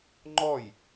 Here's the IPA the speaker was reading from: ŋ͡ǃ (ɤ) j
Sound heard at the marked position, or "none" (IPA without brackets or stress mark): ɔ